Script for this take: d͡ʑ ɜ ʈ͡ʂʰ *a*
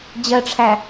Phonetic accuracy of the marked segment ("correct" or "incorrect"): incorrect